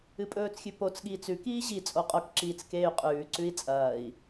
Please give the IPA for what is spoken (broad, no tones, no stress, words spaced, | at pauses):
ɨpʼɵːt͡sxʲʉ pot͡sɠiːt͡s ʉkiː ʑi t͡sʼoqʼokǁiːt͡s keːy̯qʼʉːǀʉi̯ t͡sʼɐːi̯